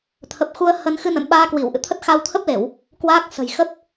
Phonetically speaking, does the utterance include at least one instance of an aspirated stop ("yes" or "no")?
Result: yes